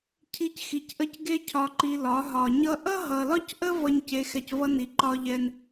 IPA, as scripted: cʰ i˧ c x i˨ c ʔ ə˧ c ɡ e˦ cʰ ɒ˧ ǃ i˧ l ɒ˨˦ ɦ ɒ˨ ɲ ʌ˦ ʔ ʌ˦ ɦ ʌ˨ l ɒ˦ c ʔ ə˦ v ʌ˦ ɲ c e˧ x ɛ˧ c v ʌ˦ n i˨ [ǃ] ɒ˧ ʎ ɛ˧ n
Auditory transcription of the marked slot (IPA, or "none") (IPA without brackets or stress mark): ǃ